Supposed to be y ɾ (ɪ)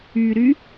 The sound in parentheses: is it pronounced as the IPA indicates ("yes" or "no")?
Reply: no